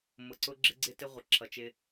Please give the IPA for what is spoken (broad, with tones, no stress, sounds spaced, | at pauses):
m ʊ˨ ǀ ʊ˦ ɡ͡ǁ ɪ˦ ɡ͡ǀ ɪ˦ t ɪ˦ ʁʷ ɪ˨ ǁʰ ʌ˨ t͡ʃ ɪ˦